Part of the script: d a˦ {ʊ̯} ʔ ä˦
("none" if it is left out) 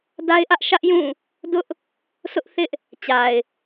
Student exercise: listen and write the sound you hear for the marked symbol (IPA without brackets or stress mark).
ɪ̯